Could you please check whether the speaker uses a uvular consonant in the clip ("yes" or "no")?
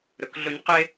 yes